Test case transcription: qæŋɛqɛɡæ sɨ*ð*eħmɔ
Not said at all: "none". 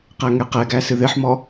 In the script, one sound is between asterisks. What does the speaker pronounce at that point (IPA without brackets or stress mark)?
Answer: ð